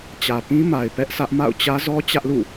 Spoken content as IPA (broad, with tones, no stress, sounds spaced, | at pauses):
t͡ɕ ä˨ p ĩ˦ m a˨ ɪ̯ p ɛ˦ ʔ sʰ ä˦ ʔ m a̰˦˨ ʊ̯ t͡ɕ ä˦ z ɔ˦ t͡ɕ ä˦ ʔ l ṵ˦˨